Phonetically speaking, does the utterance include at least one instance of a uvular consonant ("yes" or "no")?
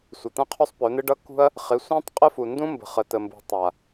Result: yes